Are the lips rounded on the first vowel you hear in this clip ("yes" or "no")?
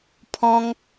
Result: yes